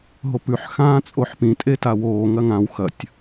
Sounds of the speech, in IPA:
ɦopʉħ xãːt͡sʼoħpĩ tʼetawoː ŋɐŋãw xɐtʲ

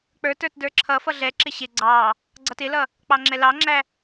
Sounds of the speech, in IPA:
k͡pə˞tə˞t də˞ǁʰʌfʌ ɮɛǁɪ ɕɪ ɡ͡ǀɑ | ɡ͡ǀʌtɪlʌ | k͡pɑŋ͡ǁɛlɑŋ͡ǁæ

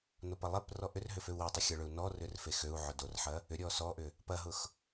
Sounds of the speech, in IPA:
nopɐlˠeprɔ ʔʏrɦʏ føu̯wetˤʏ xʲɐɭʏu̯ nɔ rʏrfexøu̯ʕʊ dorħɐ | ʏ ɾʲɔsɔʔʏ | pɐɦʊx

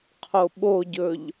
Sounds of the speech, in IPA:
qʰoɓoɟɵʎ

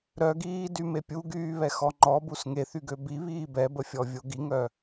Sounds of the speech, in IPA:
ɾœɡiːdyme pʲuɡyːβɛxɔ ŋ͡ǃɔbus ŋeθyɡø biβiː bɛbəfʲɔvʲo ɡiŋœ

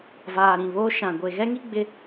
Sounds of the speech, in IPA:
vaː˨ɾĩ˨βoː˦ ʃã˨ ɡʷe˨ɣɛ˦ŋi˦ ɡ͡bɪ˦

